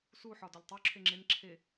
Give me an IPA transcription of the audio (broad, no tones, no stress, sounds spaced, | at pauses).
s u ħ ɒ d ɒ ʎ tˤ u ǁʰ e ŋ͡ǁ e n ǁʰ e